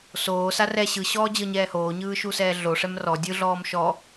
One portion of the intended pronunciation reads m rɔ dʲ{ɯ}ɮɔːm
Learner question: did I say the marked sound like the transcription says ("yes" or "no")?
yes